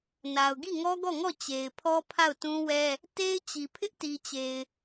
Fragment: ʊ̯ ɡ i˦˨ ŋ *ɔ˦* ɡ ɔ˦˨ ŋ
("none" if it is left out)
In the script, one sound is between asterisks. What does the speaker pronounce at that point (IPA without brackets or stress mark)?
ɔ˦